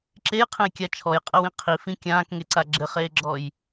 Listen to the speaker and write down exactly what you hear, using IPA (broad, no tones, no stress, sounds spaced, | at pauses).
ǁ e j qʰ ẽ j kʲ a t͡ʃʰ ɔ j qʼ ɐ w ĩ qʰ i f ĩ kʲ ãː k ŋ e ǀ a ɡ͡ǁ ɘ χ eː ɡ͡ǁ ɔ j